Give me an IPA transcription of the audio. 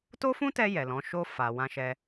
t o˦ f ũ˦ t ɛ˧ j ɛ˨ l ɔ̃˨˦ ʃ o˧ f a˨ w ã˧ ʃ ɛ˧

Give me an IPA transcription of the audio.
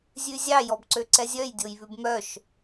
zʲ ʉ zʲ ɑ j ɔ b ǀ ø ǀ ɛ zʲ œ j dʲ o j β ʉ b m œ ʃ

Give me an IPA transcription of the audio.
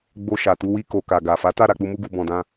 ɡ͡b o˧ ʃ a˨ t u˧ w i˧ k o˨ k a˨ ɡ a˨ f a˨˦ t a˦˨ ɾ a˧ k͡p u˧ m u˧ ɡ u˨ b ɔ̃˨ d ã˧

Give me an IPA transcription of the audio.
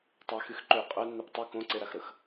tˤ ɛ x y x ǃ ø qʼ œ nː e p tˤ ø k õ ǀ e ɾ a x ɾ ə x

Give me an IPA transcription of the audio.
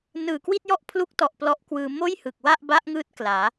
n ɯː˨˩ k w i˥˩ t̚ j ɔ˥˩ ʔ pʰ l u˦˥ k̚ t ɔ˨˩ ʔ p l ɔ˦˥ ʔ k w ɯː˧ m oː˥˩ j h ɯ˨˩ k̚ w a˥˩ ʔ b a˦˥ ʔ ŋ ɯː˦˥ t̚ k l aː˩˦

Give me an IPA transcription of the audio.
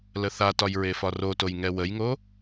l ə θ a t ɒ j ɹ e f ɒ r o t o j ŋ ɛ w ə j ŋ o

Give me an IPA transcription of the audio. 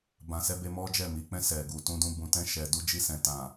b ã˧ s ɛ˦ b e˦ m ɔ˦ d͡ʒ ɛ˦˨ m i˨ k͡p ɛ̃˧ s ɛ˨ ɡ u˨ t ũ˧ d ũ˧ b ũ˧ t ɛ̃˧ ʃ ɛ˨ d u˧ d͡ʒ i˧ s ɛ̃˨ t ã˨

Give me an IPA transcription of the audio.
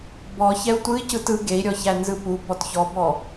b ɔ ç ɛ u̯ tʷ ɯ i̯ c ɯ t ɯ ɡ e i̯ ɾʲ ɔ ç æ n z ɯ p u b ɔ t ç ɔ b ɔ

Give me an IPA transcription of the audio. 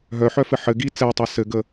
ɦ œ ħ œ f ɘ ħ ɘ ɡ i t͡s ɛ tˤ ɛ s ɘ ɡ ə

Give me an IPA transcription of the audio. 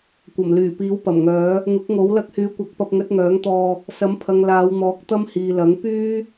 kʷ ɐ˨˩ m l yː˨˩ p iː˨˥ w p ɐ˨˩ m ŋ œː˨˥ | ŋ ʊ˨˥ k̚ ŋ o˨˥ w l ɐ˧ k̚ h yː˨˥ kʷ ɐ˨˥ k̚ p ɐ˧ p̚ ŋ ɵ˨˥ t̚ ŋ œː˨˥ ŋ t̪ ɔː˧ | s ɐ˨˥ m pʰ ɐ˨ ŋ l aː˨˧ w n̪ ɔː˨˥ k̚ t̪ ɐ˥ m h iː˨ l ɐ˨˥ ŋ p yː˥

